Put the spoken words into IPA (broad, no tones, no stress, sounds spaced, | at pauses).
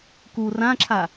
k u r ã ǁʰ a